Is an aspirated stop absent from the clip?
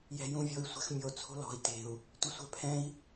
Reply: no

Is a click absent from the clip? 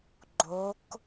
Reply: no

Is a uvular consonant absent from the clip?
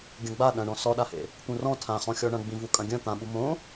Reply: no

